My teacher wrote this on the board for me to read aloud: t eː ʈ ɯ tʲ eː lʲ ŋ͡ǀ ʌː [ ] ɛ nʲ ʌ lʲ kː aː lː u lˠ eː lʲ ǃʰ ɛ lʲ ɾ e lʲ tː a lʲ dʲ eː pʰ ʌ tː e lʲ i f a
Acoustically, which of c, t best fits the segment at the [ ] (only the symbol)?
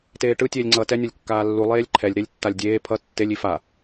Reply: t